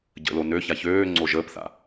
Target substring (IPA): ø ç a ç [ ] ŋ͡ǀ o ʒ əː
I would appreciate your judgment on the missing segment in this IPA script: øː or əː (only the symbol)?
øː